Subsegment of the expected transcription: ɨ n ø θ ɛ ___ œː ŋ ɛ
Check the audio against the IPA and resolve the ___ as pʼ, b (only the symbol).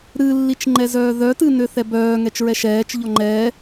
b